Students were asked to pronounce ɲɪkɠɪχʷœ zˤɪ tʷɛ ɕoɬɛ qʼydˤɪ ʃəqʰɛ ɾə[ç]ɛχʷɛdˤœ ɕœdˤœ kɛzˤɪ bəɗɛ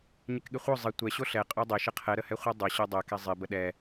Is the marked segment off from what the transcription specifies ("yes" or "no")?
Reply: yes